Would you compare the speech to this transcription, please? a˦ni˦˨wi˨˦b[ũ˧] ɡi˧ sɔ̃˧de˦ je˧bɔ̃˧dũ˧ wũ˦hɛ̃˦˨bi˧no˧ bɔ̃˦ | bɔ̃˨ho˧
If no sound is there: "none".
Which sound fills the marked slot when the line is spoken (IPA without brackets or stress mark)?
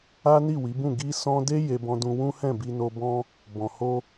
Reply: ũ˦˨